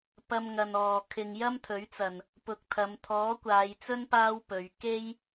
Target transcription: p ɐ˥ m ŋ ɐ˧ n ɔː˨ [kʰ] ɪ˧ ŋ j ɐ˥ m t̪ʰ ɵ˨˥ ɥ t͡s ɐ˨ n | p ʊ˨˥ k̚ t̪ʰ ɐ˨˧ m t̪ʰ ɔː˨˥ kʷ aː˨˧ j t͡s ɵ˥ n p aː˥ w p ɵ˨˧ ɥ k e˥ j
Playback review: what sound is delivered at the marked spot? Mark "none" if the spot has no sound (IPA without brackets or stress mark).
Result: kʰ